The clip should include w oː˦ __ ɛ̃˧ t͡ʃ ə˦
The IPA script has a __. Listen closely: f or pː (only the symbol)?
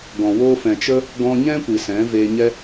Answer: f